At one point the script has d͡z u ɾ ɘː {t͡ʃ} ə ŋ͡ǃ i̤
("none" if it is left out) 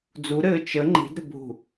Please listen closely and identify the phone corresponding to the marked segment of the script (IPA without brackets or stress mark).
t͡ʃ